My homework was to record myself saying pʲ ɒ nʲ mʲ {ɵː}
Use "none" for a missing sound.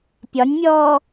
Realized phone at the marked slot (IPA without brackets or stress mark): ɔː